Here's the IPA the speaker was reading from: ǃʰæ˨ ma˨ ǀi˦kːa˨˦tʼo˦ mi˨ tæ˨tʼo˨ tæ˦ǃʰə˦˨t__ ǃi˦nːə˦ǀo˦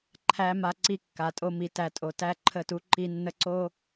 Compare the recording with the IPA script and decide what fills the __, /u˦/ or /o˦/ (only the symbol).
u˦